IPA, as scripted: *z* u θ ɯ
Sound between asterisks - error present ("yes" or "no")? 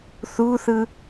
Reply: yes